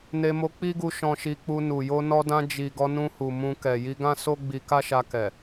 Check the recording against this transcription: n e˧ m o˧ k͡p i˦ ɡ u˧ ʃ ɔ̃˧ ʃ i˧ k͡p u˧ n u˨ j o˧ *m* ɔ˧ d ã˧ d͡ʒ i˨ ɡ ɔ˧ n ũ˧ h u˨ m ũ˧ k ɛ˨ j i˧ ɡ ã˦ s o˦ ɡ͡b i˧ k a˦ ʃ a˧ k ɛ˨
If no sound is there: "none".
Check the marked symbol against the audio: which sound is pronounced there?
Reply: n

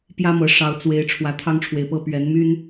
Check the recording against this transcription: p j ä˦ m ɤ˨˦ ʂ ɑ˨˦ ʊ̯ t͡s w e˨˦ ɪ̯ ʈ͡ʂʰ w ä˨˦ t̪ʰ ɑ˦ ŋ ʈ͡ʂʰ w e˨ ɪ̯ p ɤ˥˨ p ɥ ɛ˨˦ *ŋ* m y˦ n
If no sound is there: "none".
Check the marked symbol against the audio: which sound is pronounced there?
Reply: n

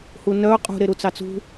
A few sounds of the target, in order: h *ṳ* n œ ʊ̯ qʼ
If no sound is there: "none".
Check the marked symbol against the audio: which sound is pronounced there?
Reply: u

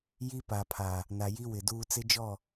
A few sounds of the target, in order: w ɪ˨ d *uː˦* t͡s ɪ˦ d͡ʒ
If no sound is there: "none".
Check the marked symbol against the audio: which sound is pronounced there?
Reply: uː˦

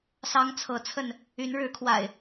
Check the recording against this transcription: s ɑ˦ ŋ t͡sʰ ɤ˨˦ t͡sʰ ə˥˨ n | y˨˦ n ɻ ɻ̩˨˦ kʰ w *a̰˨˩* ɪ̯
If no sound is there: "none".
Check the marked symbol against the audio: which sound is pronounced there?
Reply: a̰˨˩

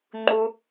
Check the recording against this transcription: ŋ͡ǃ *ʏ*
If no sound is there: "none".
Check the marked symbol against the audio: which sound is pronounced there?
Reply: u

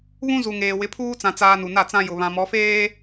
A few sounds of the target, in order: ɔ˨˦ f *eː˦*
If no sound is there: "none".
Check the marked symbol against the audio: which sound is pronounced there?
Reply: eː˦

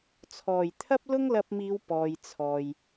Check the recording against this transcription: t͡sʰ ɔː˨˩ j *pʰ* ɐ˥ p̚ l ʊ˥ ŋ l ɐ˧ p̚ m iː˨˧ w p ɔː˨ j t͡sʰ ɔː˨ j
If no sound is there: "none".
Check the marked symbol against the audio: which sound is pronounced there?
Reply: t̪ʰ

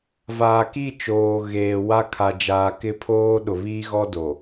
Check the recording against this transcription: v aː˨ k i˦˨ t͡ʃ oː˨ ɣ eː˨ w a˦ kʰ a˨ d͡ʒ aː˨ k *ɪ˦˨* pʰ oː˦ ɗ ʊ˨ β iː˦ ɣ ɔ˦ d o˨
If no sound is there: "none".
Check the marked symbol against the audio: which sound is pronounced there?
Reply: ɪ˦˨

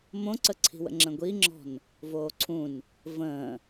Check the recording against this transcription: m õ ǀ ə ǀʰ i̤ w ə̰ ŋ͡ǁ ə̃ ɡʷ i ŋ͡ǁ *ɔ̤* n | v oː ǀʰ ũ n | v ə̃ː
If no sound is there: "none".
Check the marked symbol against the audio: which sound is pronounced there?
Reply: ɔ̤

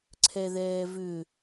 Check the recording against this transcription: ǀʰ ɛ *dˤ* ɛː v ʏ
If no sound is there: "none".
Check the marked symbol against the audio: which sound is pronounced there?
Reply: ð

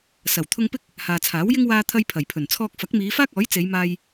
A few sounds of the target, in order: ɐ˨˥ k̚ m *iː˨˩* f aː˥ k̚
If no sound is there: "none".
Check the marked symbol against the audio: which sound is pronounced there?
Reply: iː˨˧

